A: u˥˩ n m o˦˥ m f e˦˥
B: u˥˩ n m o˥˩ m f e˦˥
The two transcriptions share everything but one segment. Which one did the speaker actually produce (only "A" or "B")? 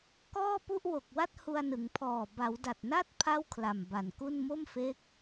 B